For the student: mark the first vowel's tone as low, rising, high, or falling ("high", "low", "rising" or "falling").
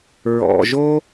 low